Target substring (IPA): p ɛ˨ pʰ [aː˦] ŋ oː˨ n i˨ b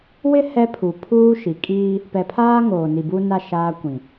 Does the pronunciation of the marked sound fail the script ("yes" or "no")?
no